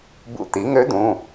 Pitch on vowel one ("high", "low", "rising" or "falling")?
rising